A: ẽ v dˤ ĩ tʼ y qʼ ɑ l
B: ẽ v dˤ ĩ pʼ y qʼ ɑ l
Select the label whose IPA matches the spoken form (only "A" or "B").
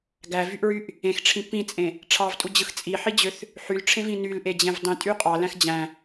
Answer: A